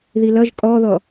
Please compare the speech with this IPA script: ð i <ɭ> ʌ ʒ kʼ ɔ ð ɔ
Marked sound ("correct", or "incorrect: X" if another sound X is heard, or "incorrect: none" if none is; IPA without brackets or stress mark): incorrect: l